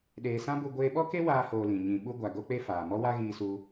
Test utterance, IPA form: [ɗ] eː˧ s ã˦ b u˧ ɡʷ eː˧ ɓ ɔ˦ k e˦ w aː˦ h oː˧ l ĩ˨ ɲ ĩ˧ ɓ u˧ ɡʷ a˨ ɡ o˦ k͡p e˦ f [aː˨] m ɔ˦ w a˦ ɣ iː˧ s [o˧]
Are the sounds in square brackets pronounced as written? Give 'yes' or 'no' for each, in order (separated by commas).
yes, yes, no